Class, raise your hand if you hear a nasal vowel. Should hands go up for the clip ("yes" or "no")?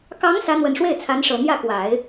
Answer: no